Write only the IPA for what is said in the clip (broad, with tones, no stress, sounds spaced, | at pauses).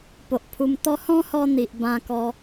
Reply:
p o˨ ʔ pʰ u˧ m t̪ ɔ˦ h ɔ̃˦ h ɔ˧ n̪ i˨ ʔ b ã˧ k ɔ˧